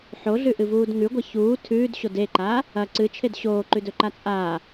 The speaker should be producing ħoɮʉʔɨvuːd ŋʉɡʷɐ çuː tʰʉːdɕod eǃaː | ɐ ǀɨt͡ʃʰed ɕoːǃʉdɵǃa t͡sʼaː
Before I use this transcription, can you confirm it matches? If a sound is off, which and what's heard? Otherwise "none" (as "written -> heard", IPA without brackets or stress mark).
none